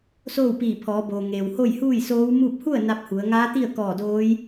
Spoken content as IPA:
s oː˥˨ w p iː˧˩ pʰ ɔː˩˧ b oː˩ ŋ eː˩ w h o˥˨ j h uː˥˨ j s oː˧˥ w m uː˥˨ p̚ h u˥˨ ə̯ n a˧˥ p̚ h u˩˧ ə̯ ŋ aː˧˥ t̪ i˥˨ ə̯ k ɔː˧˩ d oː˧˥ j

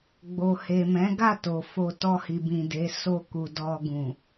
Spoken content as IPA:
ɡ͡b o˨ h e˨ m ɛ̃˨˦ ɡ a˦˨ t o˨ f o˧ t ɔ˧ h i˨ b ĩ˨ d e˨˦ s o˧ k u˨ d ɔ˧ ɡ ũ˨

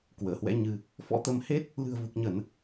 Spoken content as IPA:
k w əː˧˩ h w ɛ̰˧˥ ɲ ɨ˧ | f ɔ̰˧˥ t̪ ə˨˦ m h e˦˥ t̚ | l ɨ̤˨˩ ə̯ v u˨˩ k̚ ɲ ə˧˩˨ n

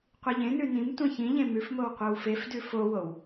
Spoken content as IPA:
qʷ i ʎ ẽ n ʉ n ĩ m tʷ ẽ ç ĩ ʎ ẽ m ʉ f m o w qʷ e w f e f d ʉ f o w o w

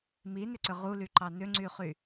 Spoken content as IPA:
m i n ʏ ǀ ʏ ʁ u l y ǃ ɑ n ʏ ŋ͡ǀ y χ y

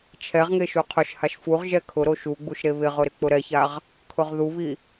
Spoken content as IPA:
t͡ʃʰ ɛ ʁ ŋ e ʃ u qʰ ʊ ʃ h a ʃ f u ʁ ʒ ɛ kʰ ʊ ɾ o ʃ u ɡ͡b u ʃ ɾ e β ɪ ʁ ʊ ɾ ɪ k͡p ʊ ɾ ɛ ç a ʁ | kʰ ʊ ʁ ð u β i

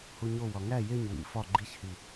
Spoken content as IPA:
h u ɲ o w ɒ ŋ æ j e ɲ w ḭ f ɒ ɡ͡ǃ i ç h i

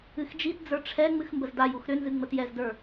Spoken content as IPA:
ɨ x d͡ʒ i t d͡z ə˞ ʈ͡ʂʰ ɛ ŋ͡m ɨ x m b ə z d a j u x ɾ ʏ n z ɨ ŋ͡m ə t j ɛ z d ə˞

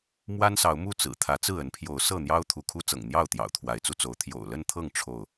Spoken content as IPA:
m w a˦ n s ɑ˨˦ ʊ̯ m u˥˨ t͡s ɹ̩˨˩ t̪ʰ ä˨˦ t͡s ɹ̩˥˨ ə˨˦ n pʰ j o˨˦ ʊ̯ s ɤ˥˨ n̪ j ɑ˦ ʊ̯ t̪ʰ u˨˦ kʰ u˦ t͡s ɤ̰˨˩ ŋ n̪ j ɑ˥˨ ʊ̯ t̪ j ɑ̰˨˩ ʊ̯ t̪ʰ w a˨˦ ɪ̯ t͡s u˧ t͡s o˨˦ ʊ̯ t̪ʰ j o̰˨˩ ʊ̯ l ə˥˨ n t̪ʰ ɤ˥˨ ŋ ʈ͡ʂʰ o˥˨ ʊ̯

